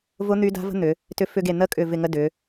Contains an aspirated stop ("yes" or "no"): no